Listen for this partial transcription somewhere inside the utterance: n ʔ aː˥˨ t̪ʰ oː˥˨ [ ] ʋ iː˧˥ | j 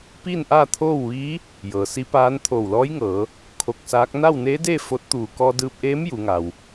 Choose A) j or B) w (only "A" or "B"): B